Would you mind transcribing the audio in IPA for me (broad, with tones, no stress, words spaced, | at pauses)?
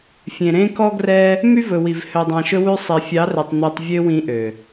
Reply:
fʲẽ˨ɾẽ˧ kɔ˧ɡrɛ˧ | my˧ vɵ˨wi˨v hø˨dˤɑ̃˨ʃɵ˧ wʉ˧sˤe˨fʲɑ˨˦rɵ˨tˤ n̪ø˧tˤvʲø˦wĩ˧ʔø˨